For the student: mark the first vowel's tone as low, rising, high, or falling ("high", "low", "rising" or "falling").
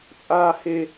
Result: high